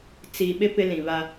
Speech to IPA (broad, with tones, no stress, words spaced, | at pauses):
t͡si˨ɓɪ˦ pɪ˦lĩ˨βa˦